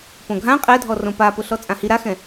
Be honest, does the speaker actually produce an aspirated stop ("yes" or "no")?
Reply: no